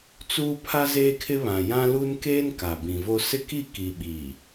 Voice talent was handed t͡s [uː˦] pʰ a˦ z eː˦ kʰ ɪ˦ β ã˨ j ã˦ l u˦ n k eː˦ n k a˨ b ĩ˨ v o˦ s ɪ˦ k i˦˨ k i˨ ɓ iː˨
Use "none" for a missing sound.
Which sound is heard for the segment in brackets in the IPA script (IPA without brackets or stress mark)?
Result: uː˦